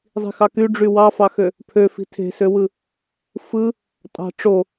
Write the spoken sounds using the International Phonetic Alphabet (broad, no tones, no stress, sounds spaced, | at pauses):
zˤ i̤ x ɑ k y ɖ͡ʐ y w ɑ f ɑ x ø | pʰ ø f i̤ tʰ e̤ s ø w ɯ | f ɯ | tʼ ɑ̤ ʈ͡ʂ o